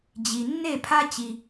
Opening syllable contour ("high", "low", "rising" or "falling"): low